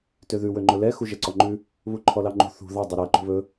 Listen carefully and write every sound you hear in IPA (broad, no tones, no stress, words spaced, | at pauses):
tøðʉ wøŋ͡ǃɵlɛ xuʒɛǀɔŋ͡ǃʉ | βuǃʰɔlɑŋ͡ǃṳ θṳ ðɑ dˤoɾæ ǃṳβɵ